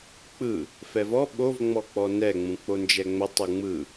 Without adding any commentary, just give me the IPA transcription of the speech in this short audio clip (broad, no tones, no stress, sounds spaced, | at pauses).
k͡p ɯ | f ɛ v ɔ ɓ o v ŋ͡m ɔ k͡p ɔ n ɛ ŋ͡m ũ k͡p o n d͡ʒ ɛ ŋ͡m ə tˤ u ŋ͡m ɯ